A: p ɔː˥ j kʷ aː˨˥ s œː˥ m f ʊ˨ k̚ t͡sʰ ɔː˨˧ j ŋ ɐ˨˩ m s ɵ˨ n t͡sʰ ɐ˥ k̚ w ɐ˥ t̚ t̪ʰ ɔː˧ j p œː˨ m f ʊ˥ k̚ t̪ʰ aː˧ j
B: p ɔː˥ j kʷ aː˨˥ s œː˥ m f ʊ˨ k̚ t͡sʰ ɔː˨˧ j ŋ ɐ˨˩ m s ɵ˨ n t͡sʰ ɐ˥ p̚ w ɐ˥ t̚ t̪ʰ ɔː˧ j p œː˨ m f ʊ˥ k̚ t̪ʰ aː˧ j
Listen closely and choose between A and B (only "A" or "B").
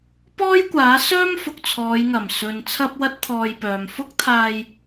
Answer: B